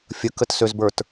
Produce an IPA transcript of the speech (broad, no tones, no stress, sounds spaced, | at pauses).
fʲ ə k ə t s ø z b ə˞ t